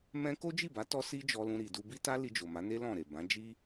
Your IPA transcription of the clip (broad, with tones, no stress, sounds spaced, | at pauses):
m ɛ̃˦ k o˦ d͡ʒ i˦˨ b a˨˦ t ɔ˦ s i˦ d͡ʒ ɔ˧ l ũ˧ ɾ i˨ d u˧ b i˦ t a˦ l i˧ d͡ʒ o˨ m a˨˦ n e˦ l ɔ̃˦˨ ɾ e˨ b ã˨˦ d͡ʒ i˦